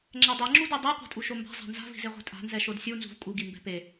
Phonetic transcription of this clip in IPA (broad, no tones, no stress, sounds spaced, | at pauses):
ŋ͡ǁ ɛ dˤ e ŋ͡ǁ u d ɛ dˤ ɛ qʷ a̤ tʼ u ʃ o m b a̤ zˤ a̤ n z a̤ v i̤ z e ʁʷ e̤ tʼ a̤ n z ɛ ʃ o d sʲ u n z ṳ v kʼ u ɡ i m b ɛ̤ p e